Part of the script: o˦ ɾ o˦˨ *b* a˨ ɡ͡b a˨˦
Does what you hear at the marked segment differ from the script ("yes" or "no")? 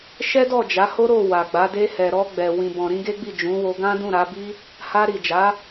yes